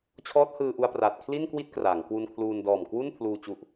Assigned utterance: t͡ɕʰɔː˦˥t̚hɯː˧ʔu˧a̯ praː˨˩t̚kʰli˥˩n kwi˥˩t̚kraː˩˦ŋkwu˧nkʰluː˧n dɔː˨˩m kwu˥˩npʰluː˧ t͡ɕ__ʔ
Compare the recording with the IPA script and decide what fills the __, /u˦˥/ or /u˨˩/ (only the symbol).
u˦˥